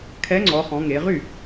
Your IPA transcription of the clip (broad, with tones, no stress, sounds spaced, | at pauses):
kʰ ɛ˨˥ ŋ͡ǀ ɔ˩˧ χ ɔ̃˩˧ ŋ e˩˧ ʁ y˥˩